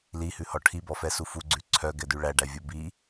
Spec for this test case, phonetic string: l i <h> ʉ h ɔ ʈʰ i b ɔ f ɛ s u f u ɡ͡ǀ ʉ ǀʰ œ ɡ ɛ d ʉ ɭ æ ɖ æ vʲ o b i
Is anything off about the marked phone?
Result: no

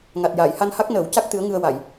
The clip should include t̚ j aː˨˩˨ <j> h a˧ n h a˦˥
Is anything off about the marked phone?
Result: no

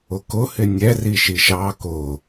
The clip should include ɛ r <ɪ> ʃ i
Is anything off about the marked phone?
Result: yes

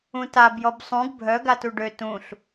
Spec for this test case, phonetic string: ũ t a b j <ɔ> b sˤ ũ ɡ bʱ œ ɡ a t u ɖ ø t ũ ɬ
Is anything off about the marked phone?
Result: no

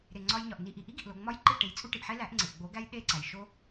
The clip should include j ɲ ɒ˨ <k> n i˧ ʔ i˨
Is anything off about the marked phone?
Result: yes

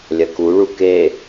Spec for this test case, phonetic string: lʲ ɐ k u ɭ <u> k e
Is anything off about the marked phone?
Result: no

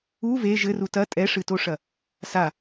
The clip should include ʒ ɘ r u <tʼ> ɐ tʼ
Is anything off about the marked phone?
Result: yes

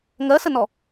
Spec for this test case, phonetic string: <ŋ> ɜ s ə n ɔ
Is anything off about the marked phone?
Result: no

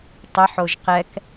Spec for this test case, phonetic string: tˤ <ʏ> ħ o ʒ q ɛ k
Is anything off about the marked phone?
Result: yes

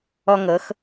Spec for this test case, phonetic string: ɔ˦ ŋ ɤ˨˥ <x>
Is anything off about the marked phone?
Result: no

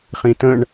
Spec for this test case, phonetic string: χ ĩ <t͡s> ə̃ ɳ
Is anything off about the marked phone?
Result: yes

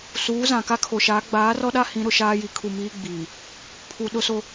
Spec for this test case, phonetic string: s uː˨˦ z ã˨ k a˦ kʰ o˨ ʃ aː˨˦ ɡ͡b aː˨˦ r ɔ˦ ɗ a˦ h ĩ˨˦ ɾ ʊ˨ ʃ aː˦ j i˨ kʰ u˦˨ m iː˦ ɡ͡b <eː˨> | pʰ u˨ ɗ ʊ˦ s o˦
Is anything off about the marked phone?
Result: yes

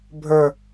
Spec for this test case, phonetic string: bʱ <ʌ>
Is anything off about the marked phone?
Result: yes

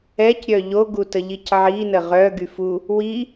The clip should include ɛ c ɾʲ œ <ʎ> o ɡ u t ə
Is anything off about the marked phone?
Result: no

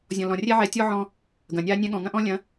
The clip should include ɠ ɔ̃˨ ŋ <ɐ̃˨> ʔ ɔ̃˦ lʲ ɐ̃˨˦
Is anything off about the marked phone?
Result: yes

